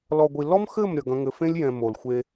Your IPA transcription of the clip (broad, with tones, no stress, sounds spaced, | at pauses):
l ɔ˨ ɡʷ i˨ l ɔ˦ m x ɘ˦˨ m ɾʲ ɐ˨ ɡ ɐ̃˧ ŋ ɘ˨ f ẽ˦ lʲ j ɛ̃˨ m o˨ l xʷ e˧